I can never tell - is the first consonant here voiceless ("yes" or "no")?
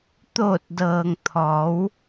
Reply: yes